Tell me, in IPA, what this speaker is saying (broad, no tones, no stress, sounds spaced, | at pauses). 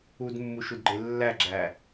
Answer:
u d mː u ʃ u d ɡ͡ǃ e lː æ ɡ͡ǁ æ